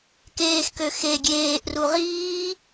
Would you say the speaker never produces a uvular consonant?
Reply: no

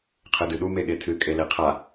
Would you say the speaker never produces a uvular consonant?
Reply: no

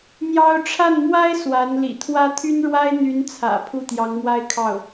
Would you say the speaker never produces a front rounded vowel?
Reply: no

